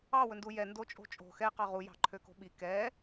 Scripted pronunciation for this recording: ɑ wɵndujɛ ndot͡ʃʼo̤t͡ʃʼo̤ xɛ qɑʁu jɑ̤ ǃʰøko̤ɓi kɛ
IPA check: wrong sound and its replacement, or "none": none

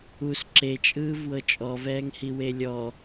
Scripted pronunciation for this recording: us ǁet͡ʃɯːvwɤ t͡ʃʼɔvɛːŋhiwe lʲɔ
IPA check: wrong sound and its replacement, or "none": t͡ʃ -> t͡ʃʼ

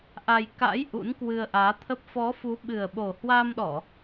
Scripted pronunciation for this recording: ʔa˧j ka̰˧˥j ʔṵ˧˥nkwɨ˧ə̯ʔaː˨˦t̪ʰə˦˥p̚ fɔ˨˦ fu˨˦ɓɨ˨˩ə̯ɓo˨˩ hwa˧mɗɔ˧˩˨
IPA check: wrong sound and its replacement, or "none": none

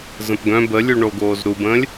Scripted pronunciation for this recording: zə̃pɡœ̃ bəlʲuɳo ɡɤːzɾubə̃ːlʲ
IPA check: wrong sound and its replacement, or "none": ɤː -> oː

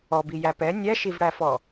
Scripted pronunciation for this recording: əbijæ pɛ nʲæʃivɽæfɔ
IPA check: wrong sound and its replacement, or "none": ə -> ɔ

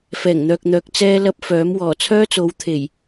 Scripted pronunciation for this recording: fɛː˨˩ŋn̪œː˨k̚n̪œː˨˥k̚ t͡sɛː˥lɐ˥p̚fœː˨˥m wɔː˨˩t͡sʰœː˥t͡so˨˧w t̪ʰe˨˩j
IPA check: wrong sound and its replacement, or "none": none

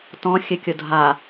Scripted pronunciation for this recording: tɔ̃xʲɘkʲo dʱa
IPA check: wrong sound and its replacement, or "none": none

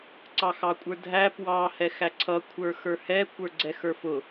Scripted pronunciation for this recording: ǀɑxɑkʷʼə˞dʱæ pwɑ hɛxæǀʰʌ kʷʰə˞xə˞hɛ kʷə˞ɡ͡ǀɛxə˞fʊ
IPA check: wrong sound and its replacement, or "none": none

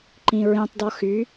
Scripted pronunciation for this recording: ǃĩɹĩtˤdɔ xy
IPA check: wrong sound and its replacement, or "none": none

